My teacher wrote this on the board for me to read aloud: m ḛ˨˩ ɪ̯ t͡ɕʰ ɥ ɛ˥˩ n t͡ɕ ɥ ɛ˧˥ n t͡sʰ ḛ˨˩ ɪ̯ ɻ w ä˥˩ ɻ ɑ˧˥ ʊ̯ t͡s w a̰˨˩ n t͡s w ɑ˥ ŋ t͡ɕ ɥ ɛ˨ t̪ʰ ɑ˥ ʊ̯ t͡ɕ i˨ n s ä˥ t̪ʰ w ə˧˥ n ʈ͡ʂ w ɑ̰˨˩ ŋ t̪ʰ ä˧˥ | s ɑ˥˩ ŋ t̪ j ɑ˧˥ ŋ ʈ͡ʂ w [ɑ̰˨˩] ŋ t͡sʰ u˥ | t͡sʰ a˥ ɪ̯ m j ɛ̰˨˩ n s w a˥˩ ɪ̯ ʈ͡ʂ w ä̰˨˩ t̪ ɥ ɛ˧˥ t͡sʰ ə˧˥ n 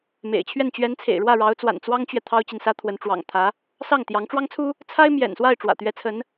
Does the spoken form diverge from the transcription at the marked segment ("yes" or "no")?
yes